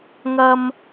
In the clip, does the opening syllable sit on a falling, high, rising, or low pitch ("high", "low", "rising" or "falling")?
high